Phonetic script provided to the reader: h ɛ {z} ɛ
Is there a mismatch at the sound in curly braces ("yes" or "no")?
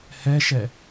yes